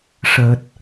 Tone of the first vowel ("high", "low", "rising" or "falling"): low